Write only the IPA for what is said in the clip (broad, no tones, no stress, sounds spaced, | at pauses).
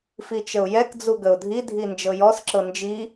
f i t͡ʃ ə ʊ̯ j ɛ k d͡z u ɡ ə ʊ̯ dʱ i dʱ i n d͡ʒ ɤ j ɔ s ǁ ɤ n d͡ʒ i